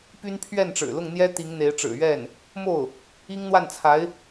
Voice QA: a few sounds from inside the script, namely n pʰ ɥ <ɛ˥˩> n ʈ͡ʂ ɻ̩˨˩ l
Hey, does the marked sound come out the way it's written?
yes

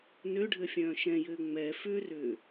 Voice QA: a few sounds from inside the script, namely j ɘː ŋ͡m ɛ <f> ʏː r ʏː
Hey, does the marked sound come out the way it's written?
yes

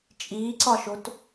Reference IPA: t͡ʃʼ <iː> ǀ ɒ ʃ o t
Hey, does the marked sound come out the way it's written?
yes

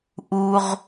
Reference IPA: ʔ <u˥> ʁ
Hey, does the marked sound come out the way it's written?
yes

